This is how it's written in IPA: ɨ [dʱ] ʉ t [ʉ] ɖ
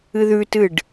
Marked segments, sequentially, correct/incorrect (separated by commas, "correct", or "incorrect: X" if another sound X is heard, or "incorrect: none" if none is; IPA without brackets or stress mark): incorrect: ð, incorrect: ɨ